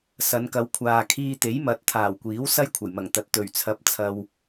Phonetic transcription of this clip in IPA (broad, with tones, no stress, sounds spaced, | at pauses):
s ɐ˨˧ n k ɐ˨˧ w kʷʰ aː˨ kʰ iː˧ t̪ e˨˥ j m ɐ˨˥ t̚ t̪ʰ aː˨˩ w kʷ iː˨˥ w s ɐ˥ j kʷʰ ɐ˨˩ j m ɐ˨˩ ŋ t̪ ɐ˨ t̚ t̪ ɵ˨˩ ɥ t͡sʰ ɐ˨˥ p̚ t͡sʰ ɐ˨ w